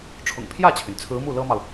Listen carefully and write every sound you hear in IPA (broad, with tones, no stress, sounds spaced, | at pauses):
ʈ͡ʂʰ ʊ̰˨˩ ŋ pʰ j ä˥˩ t͡ɕʰ y˩ n t͡sʰ ɹ̩˧˥ m u˥˩ l ɤ˥ m ɑ˨ ʊ̯